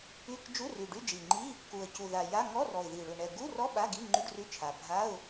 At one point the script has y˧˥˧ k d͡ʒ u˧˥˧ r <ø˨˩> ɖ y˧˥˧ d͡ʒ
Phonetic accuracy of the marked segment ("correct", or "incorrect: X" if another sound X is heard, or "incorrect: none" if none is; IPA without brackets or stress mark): incorrect: y˨˩